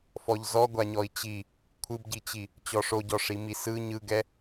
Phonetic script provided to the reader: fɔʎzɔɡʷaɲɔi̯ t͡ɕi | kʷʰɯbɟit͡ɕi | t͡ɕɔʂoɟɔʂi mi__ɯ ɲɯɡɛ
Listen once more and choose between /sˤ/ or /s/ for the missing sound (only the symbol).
s